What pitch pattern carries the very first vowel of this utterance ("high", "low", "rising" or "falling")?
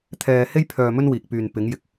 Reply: low